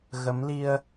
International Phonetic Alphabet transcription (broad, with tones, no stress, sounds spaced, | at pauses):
ɣ ə˨˦ m l i˧ ə̯